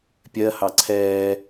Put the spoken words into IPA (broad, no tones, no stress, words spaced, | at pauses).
pʲɜhɑ ǀʰɛː